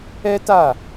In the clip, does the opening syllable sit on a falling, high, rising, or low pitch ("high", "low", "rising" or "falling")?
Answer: high